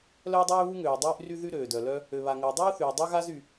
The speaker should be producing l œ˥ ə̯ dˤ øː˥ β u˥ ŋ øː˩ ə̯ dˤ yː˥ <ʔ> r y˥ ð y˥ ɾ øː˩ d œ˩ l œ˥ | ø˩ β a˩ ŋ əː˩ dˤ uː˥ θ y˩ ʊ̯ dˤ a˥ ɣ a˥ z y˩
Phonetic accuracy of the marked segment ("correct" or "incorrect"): correct